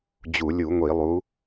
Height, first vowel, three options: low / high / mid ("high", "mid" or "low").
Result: high